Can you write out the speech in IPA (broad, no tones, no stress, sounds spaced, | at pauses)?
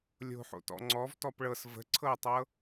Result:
lʲ o̤ ħ o̰ t ɔ̰ ŋ͡ǀ ɔ v t ɔ p ɭ ɤ s v ə̤ ǀʰ ɤ ɪ̯ tˤ ɤ